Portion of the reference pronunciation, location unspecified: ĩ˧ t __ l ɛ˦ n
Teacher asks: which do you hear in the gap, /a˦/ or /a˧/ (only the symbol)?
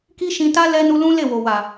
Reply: a˦